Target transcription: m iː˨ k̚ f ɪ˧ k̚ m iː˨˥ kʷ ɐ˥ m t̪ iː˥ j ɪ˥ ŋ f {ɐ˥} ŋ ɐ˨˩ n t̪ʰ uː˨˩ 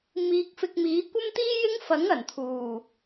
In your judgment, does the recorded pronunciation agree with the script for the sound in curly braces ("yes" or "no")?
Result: no